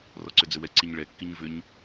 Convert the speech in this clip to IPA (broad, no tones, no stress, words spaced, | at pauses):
rɔǀʏd͡zʏwɛ ǀiɲɭɛ kːiɲvʏɲ